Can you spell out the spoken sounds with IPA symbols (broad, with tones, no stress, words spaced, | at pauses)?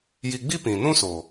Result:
ji˧ɡ͡bi˦pĩ˨ nũ˦soː˨